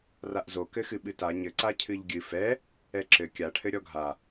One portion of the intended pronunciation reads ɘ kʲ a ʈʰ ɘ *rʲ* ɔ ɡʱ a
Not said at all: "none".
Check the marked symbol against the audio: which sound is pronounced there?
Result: ɾʲ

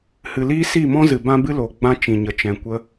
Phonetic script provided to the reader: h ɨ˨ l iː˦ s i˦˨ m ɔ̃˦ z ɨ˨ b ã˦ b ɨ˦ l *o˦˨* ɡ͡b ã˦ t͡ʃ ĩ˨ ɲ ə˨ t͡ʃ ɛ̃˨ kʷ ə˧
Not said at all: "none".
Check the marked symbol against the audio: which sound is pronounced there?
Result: o˨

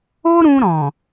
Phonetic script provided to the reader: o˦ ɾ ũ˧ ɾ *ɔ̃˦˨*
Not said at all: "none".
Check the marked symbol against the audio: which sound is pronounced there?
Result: ɔ̃˨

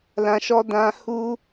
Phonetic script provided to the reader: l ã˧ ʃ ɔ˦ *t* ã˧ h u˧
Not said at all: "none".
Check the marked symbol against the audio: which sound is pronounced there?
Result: d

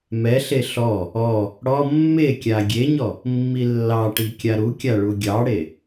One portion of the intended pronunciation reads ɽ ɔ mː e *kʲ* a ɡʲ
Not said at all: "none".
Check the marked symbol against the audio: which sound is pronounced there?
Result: kʲ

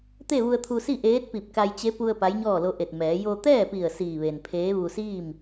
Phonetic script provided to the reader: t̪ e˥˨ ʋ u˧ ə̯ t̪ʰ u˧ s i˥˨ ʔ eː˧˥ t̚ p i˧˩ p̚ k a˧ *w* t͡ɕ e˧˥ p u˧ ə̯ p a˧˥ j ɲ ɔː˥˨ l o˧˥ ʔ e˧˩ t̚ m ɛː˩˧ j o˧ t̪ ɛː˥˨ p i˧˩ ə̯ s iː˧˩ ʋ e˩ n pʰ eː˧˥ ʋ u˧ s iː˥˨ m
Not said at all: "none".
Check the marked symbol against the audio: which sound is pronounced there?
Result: j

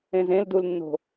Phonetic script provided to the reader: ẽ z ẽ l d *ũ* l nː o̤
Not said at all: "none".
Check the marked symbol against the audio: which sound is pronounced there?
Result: u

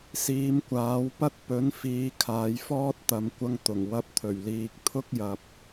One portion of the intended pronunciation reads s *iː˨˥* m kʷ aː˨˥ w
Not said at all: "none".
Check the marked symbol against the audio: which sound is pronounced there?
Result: iː˨˧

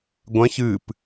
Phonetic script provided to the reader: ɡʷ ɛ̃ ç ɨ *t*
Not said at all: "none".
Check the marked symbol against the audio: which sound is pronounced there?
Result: p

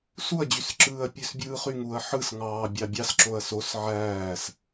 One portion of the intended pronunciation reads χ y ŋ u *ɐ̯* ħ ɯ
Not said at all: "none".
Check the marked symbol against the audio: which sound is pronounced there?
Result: ɐ̯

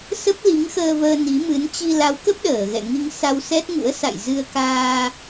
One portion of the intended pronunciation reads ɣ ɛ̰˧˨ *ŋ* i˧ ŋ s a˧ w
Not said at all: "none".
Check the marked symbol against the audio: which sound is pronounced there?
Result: ŋ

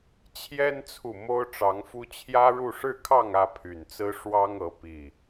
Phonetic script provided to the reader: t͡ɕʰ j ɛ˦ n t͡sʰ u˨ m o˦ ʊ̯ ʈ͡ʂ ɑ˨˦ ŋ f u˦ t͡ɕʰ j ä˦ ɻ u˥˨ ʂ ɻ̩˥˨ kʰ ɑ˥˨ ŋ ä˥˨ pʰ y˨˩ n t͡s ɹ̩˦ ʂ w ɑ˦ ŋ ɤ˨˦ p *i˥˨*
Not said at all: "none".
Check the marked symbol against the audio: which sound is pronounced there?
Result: i˨˩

